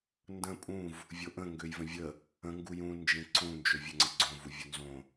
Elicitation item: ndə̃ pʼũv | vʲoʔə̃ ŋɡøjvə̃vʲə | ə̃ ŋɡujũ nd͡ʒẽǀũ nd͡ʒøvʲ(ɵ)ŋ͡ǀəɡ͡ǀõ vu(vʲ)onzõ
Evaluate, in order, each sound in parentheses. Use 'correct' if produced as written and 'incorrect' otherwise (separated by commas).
incorrect, correct